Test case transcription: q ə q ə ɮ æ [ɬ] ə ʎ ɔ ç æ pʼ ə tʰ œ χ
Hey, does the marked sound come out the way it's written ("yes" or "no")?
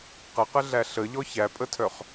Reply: yes